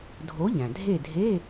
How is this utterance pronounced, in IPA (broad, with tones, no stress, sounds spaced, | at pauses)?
dʱ o˨˥ ʎ æ̃˩ dʱ e˦˨ dʱ e˧˥˧